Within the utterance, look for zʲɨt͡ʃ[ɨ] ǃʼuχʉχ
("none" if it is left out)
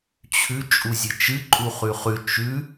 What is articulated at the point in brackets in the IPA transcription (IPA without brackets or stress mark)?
ɨ